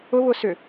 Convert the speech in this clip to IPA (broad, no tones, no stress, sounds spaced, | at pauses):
ʊ β ʊ s ʏ